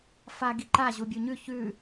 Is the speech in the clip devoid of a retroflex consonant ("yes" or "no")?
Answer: yes